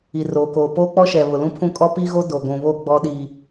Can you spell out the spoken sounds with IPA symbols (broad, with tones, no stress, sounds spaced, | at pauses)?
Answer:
i˨ r oː˨ k oː˨ p oː˦ k͡p ɔ˦ ʃ ɛ˨ β ʊ˨ l ũ˦ pʰ ũ˦˨ kʼ ɔ˦ p i˦ ɣ o˦ d o˨ ɡʷ ũ˨ β o˦˨ ɡ͡b ɔ˦ ɗ i˨